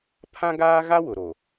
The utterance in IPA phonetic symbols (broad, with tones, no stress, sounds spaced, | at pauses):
pʰ ã˦ ɡ aː˦ ɣ a˦ w ʊ˨ ɾ o˨